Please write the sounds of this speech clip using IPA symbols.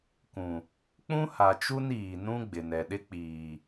kũ˨ | k͡pũ˦ha˨t͡ʃu˦n iː˨nũ˦ ɡ͡bɪ˨nɛ˨ɗɪ˦ k͡piː˨

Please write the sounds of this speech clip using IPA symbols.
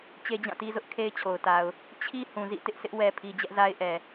t͡ɕe˦d͡ʑã˦˨ti˦zʊ˦ʔ kʰe˦ɪ̯t͡ɕʰo˨ʊ̯ta˨ʊ̯ | t͡ɕʰi˦ hũ˨zḭ˦˨ tɪ˦ʔsɪ˦ʔ wɛ˨pʰi˨ d͡ʑɛ˦ʔza˦ɪ̯ʔɛ˨

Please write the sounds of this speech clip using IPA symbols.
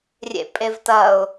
rʲḛpʼevtɐʊ̯

